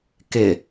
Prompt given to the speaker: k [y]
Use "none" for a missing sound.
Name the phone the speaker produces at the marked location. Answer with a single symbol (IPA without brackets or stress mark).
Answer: ɪ